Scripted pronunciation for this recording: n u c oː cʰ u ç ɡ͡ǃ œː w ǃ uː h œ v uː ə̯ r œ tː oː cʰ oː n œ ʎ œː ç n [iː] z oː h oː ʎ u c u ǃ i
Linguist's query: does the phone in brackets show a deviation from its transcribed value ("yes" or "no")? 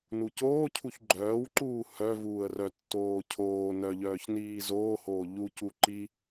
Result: no